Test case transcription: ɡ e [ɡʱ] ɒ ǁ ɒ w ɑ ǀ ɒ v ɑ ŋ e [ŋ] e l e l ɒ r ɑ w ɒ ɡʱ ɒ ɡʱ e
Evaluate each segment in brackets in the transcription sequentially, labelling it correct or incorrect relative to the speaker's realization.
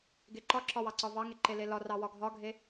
incorrect, incorrect

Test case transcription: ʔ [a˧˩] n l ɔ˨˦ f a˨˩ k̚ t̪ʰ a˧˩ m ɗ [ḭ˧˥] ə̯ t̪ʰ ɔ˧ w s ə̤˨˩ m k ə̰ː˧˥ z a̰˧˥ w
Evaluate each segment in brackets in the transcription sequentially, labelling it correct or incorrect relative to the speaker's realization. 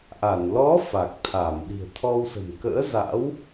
correct, incorrect

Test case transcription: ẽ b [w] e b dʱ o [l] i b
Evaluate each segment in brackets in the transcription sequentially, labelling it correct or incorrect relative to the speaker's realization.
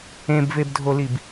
incorrect, correct

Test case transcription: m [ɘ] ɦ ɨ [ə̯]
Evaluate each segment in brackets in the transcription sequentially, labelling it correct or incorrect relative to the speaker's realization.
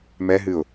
incorrect, incorrect

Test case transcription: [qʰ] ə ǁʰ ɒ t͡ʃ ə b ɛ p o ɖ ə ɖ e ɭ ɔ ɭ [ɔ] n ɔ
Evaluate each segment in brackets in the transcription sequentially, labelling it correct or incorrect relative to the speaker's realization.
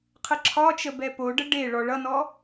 correct, incorrect

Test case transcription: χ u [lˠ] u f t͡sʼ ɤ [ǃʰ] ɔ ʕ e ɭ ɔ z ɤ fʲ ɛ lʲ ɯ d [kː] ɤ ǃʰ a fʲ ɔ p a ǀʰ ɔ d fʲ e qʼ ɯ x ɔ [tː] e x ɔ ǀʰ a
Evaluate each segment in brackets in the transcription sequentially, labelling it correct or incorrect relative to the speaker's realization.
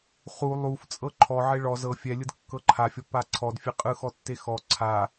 correct, correct, correct, correct

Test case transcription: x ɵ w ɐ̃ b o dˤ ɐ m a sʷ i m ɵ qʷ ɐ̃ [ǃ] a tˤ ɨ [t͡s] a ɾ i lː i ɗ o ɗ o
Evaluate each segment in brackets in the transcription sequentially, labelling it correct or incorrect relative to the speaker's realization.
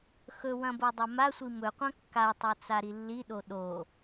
incorrect, correct

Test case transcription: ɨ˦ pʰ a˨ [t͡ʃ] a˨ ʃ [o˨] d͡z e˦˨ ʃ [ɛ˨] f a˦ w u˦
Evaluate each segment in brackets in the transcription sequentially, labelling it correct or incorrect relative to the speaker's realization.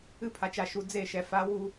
correct, incorrect, correct

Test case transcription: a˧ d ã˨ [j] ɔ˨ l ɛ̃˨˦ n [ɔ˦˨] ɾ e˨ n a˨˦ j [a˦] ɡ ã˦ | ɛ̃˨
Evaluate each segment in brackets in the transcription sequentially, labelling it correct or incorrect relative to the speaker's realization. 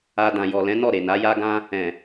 correct, correct, correct

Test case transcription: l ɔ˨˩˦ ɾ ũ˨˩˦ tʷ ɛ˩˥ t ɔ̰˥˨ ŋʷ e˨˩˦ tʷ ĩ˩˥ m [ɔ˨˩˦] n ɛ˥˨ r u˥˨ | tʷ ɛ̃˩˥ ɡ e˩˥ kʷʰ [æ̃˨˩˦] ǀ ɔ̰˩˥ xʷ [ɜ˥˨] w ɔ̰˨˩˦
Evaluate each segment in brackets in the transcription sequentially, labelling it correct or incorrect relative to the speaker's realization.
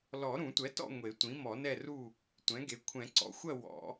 correct, incorrect, correct

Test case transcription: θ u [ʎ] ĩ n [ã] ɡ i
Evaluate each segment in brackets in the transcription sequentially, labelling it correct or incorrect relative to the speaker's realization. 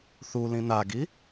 incorrect, incorrect

